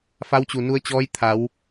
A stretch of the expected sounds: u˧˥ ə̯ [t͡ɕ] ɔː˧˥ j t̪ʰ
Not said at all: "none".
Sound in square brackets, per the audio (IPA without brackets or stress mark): t͡ɕ